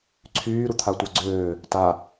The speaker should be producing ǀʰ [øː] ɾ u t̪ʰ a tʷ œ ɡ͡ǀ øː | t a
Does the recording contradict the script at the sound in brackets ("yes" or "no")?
yes